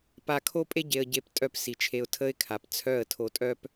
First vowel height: low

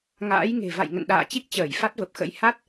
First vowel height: low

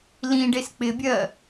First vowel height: high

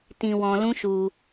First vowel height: high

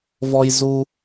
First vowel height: mid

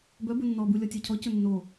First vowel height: mid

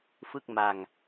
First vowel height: high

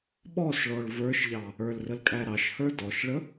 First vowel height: mid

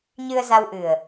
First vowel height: high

